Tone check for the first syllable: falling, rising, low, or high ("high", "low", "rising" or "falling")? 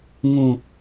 low